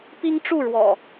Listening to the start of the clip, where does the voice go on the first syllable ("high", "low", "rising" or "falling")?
high